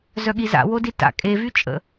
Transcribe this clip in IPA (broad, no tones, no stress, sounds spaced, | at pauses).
z œ ɠ i z a̰ w o d i t a̰ kʼ e v y t͡ʃʼ ə̰